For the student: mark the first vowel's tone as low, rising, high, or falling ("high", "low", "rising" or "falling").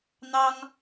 high